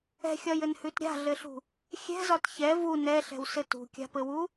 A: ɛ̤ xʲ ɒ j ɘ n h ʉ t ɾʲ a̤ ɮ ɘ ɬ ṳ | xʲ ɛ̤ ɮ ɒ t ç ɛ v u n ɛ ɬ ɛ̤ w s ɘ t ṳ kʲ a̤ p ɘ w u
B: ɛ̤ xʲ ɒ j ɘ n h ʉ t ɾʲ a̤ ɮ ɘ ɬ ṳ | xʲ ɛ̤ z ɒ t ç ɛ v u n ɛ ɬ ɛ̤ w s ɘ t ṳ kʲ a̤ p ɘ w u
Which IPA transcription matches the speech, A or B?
B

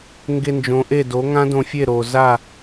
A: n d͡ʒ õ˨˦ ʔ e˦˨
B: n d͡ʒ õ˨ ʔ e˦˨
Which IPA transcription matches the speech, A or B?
A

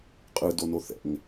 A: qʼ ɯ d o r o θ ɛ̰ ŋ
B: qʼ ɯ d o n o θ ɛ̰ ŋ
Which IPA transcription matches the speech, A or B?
B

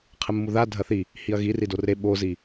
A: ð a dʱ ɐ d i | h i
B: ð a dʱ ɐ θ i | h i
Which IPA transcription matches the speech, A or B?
B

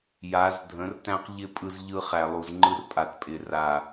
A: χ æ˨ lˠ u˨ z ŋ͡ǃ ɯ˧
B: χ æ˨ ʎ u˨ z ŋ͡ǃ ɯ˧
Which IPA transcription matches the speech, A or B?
A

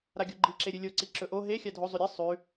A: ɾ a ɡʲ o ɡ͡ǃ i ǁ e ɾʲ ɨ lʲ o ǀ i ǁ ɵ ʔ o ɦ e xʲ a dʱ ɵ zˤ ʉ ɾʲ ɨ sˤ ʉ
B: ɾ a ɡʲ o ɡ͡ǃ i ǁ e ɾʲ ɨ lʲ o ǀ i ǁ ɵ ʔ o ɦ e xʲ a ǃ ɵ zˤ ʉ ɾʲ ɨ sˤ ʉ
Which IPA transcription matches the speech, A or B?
A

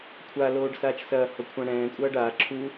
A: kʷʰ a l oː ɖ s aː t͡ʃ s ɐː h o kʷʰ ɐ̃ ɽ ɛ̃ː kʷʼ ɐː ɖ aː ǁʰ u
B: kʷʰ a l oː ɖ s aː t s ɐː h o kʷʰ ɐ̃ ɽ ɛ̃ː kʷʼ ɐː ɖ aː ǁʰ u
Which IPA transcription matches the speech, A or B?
A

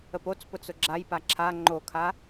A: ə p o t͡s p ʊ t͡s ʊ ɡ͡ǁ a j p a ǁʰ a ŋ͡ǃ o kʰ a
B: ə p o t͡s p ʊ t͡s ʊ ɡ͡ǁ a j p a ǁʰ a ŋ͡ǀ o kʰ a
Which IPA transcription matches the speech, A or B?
A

